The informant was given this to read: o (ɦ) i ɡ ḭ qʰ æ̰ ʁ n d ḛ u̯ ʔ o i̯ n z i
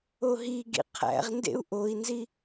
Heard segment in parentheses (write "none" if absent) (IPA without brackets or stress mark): ɦ